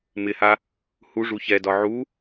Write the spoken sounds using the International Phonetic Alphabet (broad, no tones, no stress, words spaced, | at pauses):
mɪha | huʐu çɛdɒ ʕu